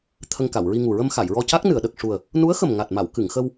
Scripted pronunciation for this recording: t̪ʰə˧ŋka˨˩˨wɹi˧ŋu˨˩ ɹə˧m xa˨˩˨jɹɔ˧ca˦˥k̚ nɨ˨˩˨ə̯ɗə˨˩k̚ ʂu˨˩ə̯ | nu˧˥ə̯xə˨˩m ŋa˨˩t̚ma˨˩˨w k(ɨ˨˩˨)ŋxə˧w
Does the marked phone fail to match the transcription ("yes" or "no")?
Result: no